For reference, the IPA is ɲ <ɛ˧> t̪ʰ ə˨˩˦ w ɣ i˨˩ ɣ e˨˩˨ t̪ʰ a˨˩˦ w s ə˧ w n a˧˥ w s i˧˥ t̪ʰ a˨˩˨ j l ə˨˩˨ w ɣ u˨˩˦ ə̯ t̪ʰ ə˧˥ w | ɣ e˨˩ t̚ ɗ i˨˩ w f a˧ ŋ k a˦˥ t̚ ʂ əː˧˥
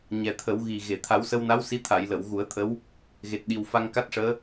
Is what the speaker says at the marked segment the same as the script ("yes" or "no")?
no